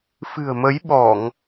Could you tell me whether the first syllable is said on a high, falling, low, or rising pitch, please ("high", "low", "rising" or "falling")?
low